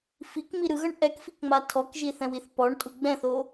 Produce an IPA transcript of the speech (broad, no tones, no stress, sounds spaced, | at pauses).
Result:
f i k m i ɾ ɯ ɣ ʌ ɳ ʔ ɛ k f i k ŋ͡m a tʰ ɔ k ʒ i θ ɛ̃ w i θ p ɔ ɳ tʼ u ɡ͡b ɛ̃ θ o